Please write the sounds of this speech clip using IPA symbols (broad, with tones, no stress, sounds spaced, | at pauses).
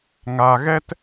ŋ a˨ ɣ ɛ˧ t